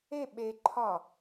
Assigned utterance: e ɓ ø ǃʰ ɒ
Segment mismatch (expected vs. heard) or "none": ø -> e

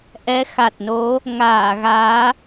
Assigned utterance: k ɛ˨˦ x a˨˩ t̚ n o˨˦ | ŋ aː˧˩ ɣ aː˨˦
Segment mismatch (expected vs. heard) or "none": k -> ʔ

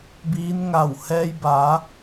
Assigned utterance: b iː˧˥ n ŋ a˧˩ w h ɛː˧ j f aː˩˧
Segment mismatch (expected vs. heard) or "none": f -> b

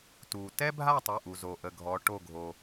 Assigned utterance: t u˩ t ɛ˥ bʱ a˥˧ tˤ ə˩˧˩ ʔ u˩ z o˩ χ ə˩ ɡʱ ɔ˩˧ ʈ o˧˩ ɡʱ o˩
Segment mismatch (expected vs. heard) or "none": χ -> ʔ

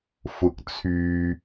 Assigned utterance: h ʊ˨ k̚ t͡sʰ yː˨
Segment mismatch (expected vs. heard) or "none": h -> f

